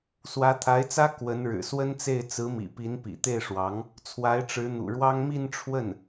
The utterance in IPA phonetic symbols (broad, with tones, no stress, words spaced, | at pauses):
swä˧˥t̪ʰa˧˥ɪ̯t͡sä˥ kwə˧˥nɻɻ̩˨˩ swə˥nt͡se˥˩ɪ̯ t͡sɹ̩˧˥mḭ˨˩pi˧˥n pḭ˨˩t̪e˥˩ɪ̯ʂwɑ˧˥ŋ | t͡sʰwa˧˥ɪ̯ʈ͡ʂɻ̩˧˥n̪ṵ˨˩ɻwɑ˥ŋ mi˥˧nʈ͡ʂʰwə˥˩n